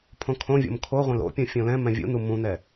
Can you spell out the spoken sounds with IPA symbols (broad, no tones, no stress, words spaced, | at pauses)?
pʰõkʰõvʲo̰m kʰoʁʷɛ̃l o̰pʲũ fʲõlɛ̃mɛ̃ vʲṵnu mũnɛ